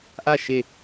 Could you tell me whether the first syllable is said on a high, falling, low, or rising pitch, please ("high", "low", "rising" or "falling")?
falling